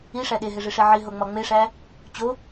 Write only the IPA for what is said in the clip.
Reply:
iʂæ ɗeɦeʐiʂe ʕiɦoŋ͡mɒ ŋ͡meʂæ | t͡ɕo

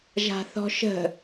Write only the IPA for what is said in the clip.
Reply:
ʒa̤θɔ̤ʃə̤

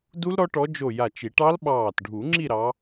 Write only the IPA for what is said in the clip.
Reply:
du˦˥lɾɔ˨˦ʈɔ˨˦d͡ʒo˧˩ ja˧˩t͡ʃi˨˩˦ʈ ɑ˦˥lɓɑː˧˩tɖʱu˨˩˦ ŋ͡ǁi˥˧ɾɑ˨˦

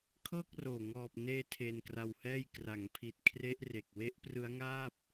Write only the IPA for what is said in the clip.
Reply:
kʰɤː˥˩k̚roː˨˩ ŋɔː˨˩p̚neː˧ tʰe˧nkra˧whɛː˥˩j kra˩˦ŋpʰi˨˩t̚ kʰre˦˥ʔre˨˩k̚ we˦˥ʔprɯ˦˥a̯ŋaː˥˩p̚

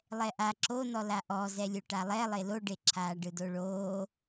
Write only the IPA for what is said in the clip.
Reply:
lˠɛʔa ǁonɔ laʔɔzɛlʲo ʈalˠɛlˠe loɖe ǁʰaːɖɯdoɭoː

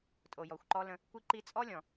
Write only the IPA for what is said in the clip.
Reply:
tʼo˨jɔ˨xʷǃɔ˧lə̃˧ | kʷi˧ǃi˧t͡sʼɔ˦lʲɔ̃˨

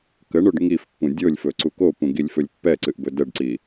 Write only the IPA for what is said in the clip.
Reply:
kəɳoɖ ŋifpːũ dʲolʲfɵ ǀukopũ ɡilʲfɵlʲpːɛǀɨʔ bɵdəɖǀi

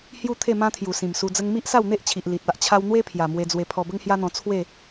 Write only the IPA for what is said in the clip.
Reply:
hju˥˧t̪ʰe˥˧mã˦t̪ʰju˨˩ sĩ˨˩msu˧d͡zə˦ŋ mi˦ʔsa˥˧wn̪e˦ʔt͡ɕʰi˨ʔ li˨t̚a˦ʔt͡ɕʰa˦w n̪we˦pʰja˨˩ mwe˧d͡zwe˧ pʰɔ˧bə˦ŋhja˦n̪ɔ̃˧ t͡sʰwe˥˧

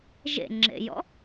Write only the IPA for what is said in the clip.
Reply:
ʒḛŋ͡ǁḛjɔ̰

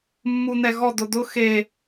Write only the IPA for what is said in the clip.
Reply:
mːun̪ɛɣɔ d̪ʊd̪ʊ xe

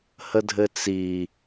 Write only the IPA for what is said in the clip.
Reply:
hədʱɘt͡si

